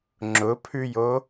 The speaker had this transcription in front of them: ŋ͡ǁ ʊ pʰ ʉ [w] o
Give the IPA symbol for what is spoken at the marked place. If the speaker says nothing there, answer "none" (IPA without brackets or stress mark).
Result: j